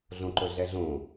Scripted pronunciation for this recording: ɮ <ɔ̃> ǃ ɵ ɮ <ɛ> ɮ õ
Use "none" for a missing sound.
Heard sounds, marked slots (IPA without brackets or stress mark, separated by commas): õ, ɛ